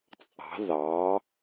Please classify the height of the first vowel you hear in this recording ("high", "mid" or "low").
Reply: low